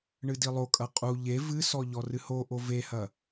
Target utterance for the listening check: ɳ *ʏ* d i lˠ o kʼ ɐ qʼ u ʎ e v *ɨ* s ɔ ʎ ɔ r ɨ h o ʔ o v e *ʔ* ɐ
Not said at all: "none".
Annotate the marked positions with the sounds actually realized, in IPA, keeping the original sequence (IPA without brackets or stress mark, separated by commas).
ɨ, ɨ, h